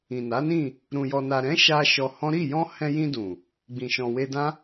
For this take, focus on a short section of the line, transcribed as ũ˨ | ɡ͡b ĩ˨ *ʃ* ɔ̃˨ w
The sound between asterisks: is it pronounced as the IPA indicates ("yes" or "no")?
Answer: yes